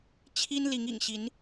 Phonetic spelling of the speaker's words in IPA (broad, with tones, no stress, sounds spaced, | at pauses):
t͡ɕʰ i˦ n l i˨˦ ŋ ḭ˨˩ ŋ ɕ i˨˦ n